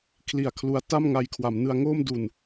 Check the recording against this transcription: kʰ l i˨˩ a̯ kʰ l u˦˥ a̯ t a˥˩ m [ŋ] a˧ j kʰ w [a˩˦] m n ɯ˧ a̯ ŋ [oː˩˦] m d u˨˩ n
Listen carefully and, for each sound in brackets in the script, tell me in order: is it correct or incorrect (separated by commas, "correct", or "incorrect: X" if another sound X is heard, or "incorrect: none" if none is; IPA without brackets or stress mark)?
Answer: correct, correct, incorrect: oː˥˩